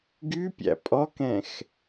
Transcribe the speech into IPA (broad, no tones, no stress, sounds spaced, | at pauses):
ɡ y pʲ æ̰ pʼ ɔ k ɛ̃ x